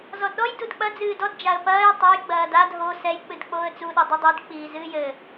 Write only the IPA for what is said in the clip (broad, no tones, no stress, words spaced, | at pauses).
zɔdɗɔj dudk͡pɐ d͡zɨːdɔd d͡ʒaə̯pɐːj tˤaj ɡ͡bɐːdad ɦo sɛj k͡pɨdk͡poːə̯t͡su ɗɛdˤodˤid k͡piːzɨːjɘ